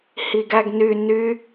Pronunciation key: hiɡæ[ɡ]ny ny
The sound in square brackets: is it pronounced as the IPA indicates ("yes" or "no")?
yes